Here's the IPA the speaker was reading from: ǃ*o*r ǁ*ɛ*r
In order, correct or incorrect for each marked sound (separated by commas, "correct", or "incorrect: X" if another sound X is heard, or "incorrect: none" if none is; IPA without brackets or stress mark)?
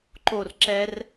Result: correct, correct